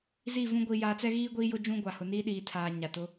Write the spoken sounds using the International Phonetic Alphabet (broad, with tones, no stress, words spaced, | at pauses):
zi˦˨vũ˦ ɡʷi˨jaː˨t͡sɛ˦ɣiː˦ ɡʷiː˦jʊ˦d͡ʒũ˦ɡʷa˨ hʊ˨niː˦ɗiː˨tʰaː˨ ɲa˨tʊ˨˦